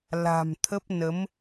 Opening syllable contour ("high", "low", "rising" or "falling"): low